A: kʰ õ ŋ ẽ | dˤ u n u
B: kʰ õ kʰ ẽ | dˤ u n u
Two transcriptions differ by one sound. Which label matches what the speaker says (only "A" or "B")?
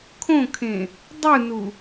B